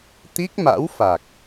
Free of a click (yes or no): yes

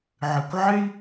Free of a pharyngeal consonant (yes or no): no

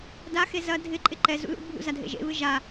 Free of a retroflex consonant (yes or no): yes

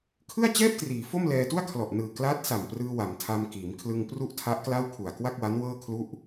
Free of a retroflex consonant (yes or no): yes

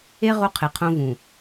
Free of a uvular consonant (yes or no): no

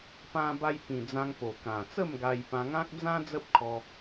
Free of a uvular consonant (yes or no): yes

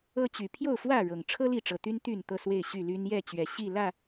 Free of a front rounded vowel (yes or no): no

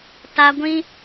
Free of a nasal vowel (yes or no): no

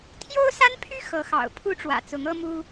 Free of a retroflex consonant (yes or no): no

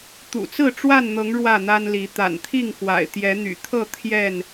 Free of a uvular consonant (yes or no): yes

